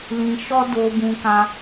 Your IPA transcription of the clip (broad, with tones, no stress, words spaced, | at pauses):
lĩ˧ʃɔ˦ do˧ bũ˧kã˧